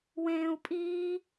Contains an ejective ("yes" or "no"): yes